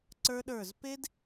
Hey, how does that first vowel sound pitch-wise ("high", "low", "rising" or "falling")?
high